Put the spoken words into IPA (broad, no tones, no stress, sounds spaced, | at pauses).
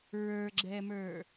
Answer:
ɹ ə˞ ɡ͡ǁ ɛ m ə˞